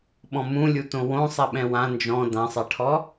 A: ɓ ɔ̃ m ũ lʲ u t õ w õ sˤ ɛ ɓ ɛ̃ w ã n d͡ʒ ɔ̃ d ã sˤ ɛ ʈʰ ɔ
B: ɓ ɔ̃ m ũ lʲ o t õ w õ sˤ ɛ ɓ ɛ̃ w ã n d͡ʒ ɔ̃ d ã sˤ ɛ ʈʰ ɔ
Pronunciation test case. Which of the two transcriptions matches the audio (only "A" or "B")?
A